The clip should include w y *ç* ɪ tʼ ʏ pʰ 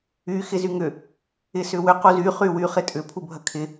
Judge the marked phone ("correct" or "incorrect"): incorrect